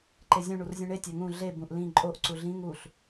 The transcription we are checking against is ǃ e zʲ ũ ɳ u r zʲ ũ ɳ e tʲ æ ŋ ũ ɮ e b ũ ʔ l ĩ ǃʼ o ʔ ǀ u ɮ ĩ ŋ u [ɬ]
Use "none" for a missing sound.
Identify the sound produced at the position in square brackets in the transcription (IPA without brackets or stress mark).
ɬ